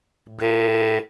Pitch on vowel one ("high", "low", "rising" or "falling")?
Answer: high